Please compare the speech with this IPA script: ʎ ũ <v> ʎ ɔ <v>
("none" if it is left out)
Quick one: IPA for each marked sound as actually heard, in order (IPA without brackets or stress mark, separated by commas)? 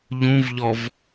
v, v